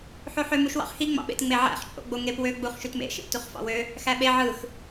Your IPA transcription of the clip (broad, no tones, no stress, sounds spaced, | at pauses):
ħ o ħ ø m u ʃ w ɑ̰ χ x i ŋ͡m ɑ̰ ɓ ḛ t ŋ͡m e ʕ æ̰ χ t͡ʃʼ o̰ ɡ͡b o ŋ e p w ø ɡ͡b u χ ʃ y t m ḛ ʃ ḭ p t u χ f ɑ̰ w ø | x æ ɓ e ʕ ɯ x